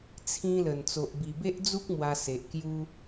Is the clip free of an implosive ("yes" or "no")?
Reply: yes